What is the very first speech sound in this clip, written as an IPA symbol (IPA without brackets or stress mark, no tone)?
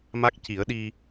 m